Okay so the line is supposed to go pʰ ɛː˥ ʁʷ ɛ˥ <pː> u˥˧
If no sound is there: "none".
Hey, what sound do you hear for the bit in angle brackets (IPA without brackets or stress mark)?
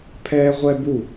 b